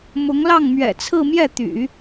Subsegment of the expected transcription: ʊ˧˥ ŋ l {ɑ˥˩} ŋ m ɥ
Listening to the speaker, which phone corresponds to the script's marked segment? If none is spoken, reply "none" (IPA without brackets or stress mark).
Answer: ɑ˥˩